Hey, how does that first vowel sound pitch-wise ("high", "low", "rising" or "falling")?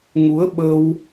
rising